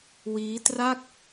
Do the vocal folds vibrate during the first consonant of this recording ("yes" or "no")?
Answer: yes